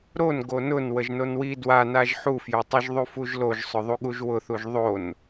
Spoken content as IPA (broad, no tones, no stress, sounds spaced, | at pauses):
ɾ o n ɡ o n ʊ n w ə ʒ n o n w i d w a n a ʒ ħ u f j o tˤ ʊ ʒ ðˤ u f u ʒ l o ʒ sˤ ʊ ðˤ u ɠ u ʒ w ʊ θ u ʒ ðˤ o n